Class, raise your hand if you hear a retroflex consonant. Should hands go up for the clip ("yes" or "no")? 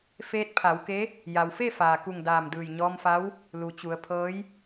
no